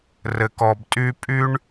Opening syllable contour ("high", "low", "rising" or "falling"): low